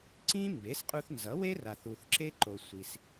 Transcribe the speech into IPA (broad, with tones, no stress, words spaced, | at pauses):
ǀĩ˥ mbe˩˥sqʼu˧θnzʌ˩˥we˥ ra˩θu˩θ ǁe˥ǃo˩ sʷi˩s